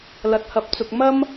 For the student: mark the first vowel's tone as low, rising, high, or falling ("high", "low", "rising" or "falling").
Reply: high